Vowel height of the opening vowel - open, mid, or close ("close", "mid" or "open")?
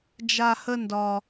open